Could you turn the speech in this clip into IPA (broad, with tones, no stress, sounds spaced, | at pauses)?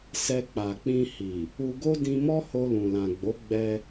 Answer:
s ɛ˧ k͡p a˨ k͡p ĩ˧ h i˨ | u˧ ɡ o˦ d ĩ˧ m ɔ˦ h o˧ l ũ˨ l ã˨ ɡ͡b o˨˦ ɡ͡b ɛ˧